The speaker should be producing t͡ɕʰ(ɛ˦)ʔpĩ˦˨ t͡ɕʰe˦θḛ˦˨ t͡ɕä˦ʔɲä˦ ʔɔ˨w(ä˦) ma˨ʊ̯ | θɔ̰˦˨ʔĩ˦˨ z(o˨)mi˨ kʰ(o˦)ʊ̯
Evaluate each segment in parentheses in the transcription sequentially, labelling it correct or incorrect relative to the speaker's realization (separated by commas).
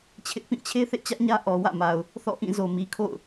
incorrect, incorrect, correct, incorrect